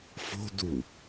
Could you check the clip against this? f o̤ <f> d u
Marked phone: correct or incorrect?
incorrect